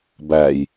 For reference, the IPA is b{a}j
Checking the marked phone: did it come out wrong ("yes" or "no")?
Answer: yes